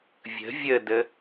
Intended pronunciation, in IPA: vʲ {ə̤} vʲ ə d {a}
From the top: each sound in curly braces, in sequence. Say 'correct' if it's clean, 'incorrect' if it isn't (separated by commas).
correct, incorrect